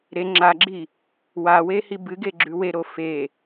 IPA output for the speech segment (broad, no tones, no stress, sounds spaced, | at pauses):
ɾ e ŋ͡ǁ a ɡ͡ǁ i | w a w e h i b ɨ ɡ e ɡ͡ǁ ʉ w e ɾ o f e